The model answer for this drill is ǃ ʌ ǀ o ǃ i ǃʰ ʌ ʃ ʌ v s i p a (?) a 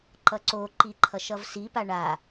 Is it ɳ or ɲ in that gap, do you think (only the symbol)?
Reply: ɳ